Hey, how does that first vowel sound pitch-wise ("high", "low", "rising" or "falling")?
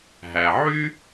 low